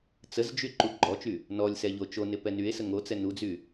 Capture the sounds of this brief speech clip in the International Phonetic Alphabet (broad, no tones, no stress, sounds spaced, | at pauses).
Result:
t͡s ə z d͡ʒ y ǃ u ɡ͡ǃ ɔ t͡ʃ y | n ɔ lʲ s ɛ ʎ o t͡ʃ o n ɪ p ɛ n y e̯ s ə ŋ o t͡s ɛ n u d͡z y